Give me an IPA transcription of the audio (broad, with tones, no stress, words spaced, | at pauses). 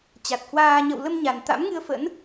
t͡ɕa˨˩t̚hwaː˧ ɲə̰˧˨wlə˧m ɲa˨˩nt̪a̰˧˥mŋɨ˧ə̯ fə̰˧˥n